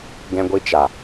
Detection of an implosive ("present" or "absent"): absent